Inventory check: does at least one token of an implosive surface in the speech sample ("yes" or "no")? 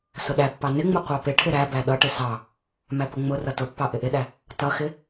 yes